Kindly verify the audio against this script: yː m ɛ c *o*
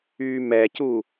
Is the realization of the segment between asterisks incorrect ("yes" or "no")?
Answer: yes